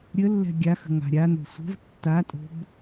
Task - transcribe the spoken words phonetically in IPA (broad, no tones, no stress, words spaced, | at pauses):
ɾʲə lːɛ̤ɡʲaxə̤ ŋa̤ɾʲano̤ sʷə̤v tːatʼo̤b